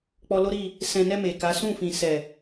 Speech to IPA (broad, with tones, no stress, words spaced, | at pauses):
k͡pɔ˧lo˦ɾi˦˨ | sɛ̃˨nɛ˧ me˨ka˨˦ sũ˦˨fĩ˨sɛ˨